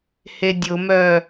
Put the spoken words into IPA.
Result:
h e dʲ ʊ m œ

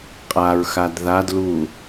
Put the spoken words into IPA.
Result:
qʼ a ɹ x a d ð a d l u

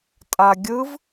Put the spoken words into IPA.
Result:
tʼ a ɡʲ ɯ v

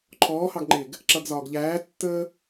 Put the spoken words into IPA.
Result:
ǃʰ ɔː h ɑ ɡ ŋ͡ǃ ɪː ɡ | ǁ ʌ ɡ z ɒː ɡ ʎ æː tː əː

